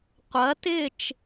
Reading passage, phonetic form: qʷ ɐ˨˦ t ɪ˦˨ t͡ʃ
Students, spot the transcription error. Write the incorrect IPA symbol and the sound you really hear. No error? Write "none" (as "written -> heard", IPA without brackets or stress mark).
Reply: none